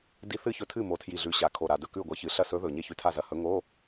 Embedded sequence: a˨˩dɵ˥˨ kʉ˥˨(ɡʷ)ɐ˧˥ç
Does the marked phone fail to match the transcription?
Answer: no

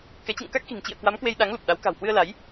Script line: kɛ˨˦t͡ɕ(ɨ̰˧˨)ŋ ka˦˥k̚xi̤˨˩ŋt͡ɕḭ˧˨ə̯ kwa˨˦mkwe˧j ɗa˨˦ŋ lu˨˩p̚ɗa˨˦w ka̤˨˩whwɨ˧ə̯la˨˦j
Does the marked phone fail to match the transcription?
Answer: no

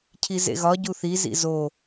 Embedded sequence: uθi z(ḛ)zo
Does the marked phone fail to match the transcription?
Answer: yes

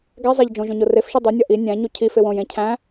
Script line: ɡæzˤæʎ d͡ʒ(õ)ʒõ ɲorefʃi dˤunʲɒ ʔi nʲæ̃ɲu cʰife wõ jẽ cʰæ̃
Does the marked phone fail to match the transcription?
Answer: no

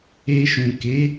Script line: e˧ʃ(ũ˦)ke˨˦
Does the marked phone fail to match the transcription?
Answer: yes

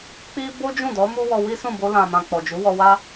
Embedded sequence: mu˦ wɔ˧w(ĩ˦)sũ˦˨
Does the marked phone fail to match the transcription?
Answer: yes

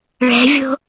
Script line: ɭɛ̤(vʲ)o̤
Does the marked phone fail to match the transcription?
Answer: no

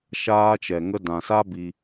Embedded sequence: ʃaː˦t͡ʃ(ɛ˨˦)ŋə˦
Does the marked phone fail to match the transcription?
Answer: yes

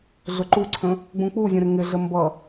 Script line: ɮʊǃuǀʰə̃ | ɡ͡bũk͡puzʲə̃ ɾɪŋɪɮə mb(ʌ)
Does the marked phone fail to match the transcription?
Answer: no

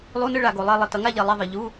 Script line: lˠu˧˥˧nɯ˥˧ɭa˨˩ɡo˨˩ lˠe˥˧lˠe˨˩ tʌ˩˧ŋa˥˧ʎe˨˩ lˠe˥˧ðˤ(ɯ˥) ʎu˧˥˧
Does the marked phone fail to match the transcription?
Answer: yes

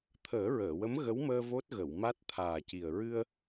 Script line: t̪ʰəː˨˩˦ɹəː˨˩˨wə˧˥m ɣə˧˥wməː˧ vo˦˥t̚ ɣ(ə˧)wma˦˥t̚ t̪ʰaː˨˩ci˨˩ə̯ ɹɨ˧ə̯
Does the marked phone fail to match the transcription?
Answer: yes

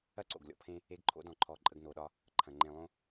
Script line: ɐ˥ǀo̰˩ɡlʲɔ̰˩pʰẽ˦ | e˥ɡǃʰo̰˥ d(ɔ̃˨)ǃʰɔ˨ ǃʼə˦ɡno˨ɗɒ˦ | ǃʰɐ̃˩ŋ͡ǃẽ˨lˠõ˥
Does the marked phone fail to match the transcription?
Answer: no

